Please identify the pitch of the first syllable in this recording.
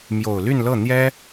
low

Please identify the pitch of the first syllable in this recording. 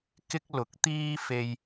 high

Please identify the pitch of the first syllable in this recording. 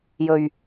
low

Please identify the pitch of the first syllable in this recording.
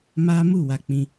high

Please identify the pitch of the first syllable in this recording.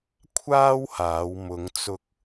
high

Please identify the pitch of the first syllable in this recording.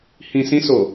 low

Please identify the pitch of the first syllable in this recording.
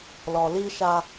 low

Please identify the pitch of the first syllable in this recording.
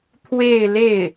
falling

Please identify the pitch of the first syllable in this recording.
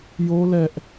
high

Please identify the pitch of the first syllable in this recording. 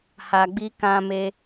low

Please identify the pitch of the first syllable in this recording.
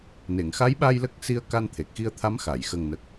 low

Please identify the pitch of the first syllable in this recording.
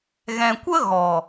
low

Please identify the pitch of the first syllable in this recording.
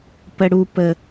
high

